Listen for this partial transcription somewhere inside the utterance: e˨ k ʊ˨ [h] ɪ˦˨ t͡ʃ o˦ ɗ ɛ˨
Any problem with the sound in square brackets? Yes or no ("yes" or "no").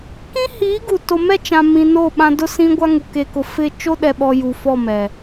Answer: yes